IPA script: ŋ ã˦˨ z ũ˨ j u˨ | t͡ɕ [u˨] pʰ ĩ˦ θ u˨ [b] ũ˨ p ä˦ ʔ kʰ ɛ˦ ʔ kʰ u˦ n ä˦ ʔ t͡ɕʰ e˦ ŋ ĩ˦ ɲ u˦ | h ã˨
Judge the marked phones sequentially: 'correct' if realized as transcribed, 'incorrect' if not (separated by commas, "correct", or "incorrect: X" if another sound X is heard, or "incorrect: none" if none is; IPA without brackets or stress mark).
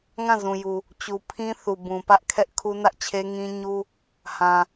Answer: correct, correct